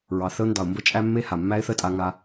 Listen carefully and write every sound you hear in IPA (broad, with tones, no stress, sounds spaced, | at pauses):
ɹ ɑ˨ θ ə˧ ʊ̯ n d ɑ˨ ʊ̯ m b ə˦ t͡ʃʼ æ˦ mː e˦ h a˨ mː æ˦ ɪ̯ θ ə˦ tʼ a˧ ŋ a˧